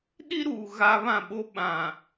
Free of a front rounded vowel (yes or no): yes